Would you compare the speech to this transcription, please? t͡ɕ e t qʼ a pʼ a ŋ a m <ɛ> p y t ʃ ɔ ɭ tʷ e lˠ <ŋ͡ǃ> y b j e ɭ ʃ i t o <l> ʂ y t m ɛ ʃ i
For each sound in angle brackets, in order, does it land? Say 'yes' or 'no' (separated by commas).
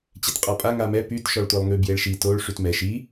yes, no, no